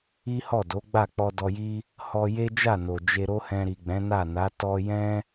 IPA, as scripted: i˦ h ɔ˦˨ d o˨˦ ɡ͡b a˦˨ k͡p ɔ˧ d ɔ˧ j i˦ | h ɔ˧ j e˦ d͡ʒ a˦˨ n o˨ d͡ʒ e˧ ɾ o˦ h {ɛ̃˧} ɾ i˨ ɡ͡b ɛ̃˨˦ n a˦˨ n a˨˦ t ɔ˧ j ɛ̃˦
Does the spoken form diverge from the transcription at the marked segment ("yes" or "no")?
no